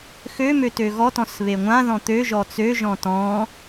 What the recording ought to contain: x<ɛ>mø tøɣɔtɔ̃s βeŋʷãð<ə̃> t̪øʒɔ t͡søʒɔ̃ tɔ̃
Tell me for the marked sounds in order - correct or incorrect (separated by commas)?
incorrect, incorrect